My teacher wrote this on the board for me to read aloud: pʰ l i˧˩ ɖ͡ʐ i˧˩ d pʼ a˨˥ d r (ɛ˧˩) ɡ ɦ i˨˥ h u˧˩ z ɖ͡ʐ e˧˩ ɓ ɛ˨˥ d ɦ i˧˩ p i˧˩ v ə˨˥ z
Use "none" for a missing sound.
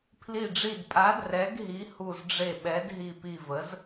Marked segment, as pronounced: ɛ˨˥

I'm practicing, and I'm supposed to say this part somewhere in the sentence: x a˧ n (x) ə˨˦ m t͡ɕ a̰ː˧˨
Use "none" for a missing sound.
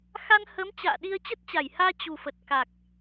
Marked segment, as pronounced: h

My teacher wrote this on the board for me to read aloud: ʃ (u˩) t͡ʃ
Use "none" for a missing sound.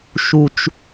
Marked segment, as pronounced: u˩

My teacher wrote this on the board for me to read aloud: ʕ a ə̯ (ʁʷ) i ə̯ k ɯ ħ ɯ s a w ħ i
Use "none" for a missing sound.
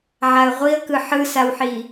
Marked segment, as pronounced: ʁʷ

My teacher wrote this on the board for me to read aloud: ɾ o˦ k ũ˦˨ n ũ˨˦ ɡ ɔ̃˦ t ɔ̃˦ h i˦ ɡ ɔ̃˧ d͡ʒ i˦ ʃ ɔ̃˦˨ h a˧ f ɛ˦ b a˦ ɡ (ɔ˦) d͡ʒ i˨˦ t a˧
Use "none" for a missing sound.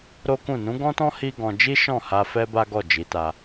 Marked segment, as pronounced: ɔ˦˨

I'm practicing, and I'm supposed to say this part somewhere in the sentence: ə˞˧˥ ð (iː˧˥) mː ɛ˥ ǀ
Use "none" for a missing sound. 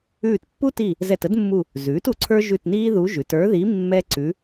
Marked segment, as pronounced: i˧˥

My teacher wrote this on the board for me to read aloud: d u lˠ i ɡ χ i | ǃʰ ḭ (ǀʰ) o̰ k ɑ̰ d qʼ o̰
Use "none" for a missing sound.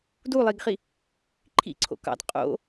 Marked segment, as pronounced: ǀʰ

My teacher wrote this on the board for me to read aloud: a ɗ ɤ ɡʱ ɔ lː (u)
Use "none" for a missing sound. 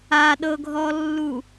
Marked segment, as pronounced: u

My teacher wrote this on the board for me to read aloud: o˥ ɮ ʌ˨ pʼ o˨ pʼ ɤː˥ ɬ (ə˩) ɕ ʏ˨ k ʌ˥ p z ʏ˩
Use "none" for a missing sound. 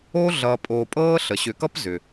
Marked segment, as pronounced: ə˩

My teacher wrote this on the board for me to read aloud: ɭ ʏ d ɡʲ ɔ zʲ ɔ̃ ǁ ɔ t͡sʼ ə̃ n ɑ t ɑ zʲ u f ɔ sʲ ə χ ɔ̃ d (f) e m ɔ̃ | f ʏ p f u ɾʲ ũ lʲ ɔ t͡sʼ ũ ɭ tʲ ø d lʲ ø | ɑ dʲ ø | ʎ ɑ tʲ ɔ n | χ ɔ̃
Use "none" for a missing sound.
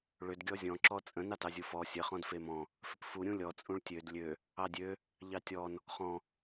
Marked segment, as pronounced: f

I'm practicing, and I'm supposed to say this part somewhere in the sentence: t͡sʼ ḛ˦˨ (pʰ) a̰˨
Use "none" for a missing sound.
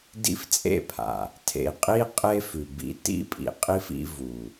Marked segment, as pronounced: pʰ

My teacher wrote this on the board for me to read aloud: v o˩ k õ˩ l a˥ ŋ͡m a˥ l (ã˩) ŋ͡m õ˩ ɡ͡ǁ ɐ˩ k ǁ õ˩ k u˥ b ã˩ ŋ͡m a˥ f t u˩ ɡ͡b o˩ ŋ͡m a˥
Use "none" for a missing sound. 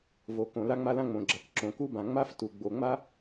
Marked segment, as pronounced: ã˥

